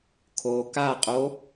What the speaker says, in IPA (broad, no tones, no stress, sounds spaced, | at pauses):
kʰ o k a qʼ o